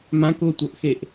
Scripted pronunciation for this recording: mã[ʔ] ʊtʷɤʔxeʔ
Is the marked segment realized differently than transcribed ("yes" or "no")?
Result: yes